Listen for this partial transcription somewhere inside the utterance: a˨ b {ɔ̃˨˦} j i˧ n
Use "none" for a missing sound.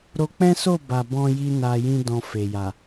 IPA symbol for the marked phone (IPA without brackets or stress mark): ɔ̃˧